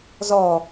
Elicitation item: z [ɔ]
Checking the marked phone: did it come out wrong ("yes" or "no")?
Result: no